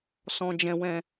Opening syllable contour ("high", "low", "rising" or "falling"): low